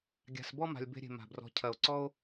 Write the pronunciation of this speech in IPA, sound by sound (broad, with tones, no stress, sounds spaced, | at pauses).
ɡʲ a̤˨ s b ɔ˦ m a̤˨ lʲ b e̤˧ ɾʲ e̤˨ m a̤˨ b r ɔ̤˧ cʰ ɐ˨ o̯ ǀ ɔ˦ o̯